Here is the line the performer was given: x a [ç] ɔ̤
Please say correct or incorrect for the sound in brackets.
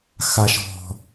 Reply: incorrect